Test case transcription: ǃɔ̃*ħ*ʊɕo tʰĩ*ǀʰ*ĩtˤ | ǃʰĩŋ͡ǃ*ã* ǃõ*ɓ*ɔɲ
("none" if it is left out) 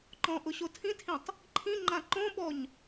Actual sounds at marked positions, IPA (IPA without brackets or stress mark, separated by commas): ʔ, tʰ, ã, ɓ